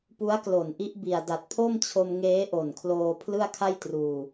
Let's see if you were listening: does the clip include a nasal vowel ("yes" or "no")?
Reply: no